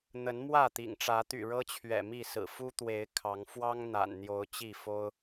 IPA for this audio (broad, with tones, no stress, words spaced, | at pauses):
n̪ə˨˦nmwä˥˨t̪ḭ˨˩ŋʈ͡ʂä˨˦ t̪y̰˨˩ɻɤ˦t͡ɕʰɥɛ̰˨˩ mi˥˨sɹ̩˨˩ fu˦t̪we˨˦ɪ̯ kʰɑ˨˦ŋ fwɑ˦ŋ n̪a̰˨˩nn̪jo˨˦ʊ̯ t͡ɕi˥˨fo˦ʊ̯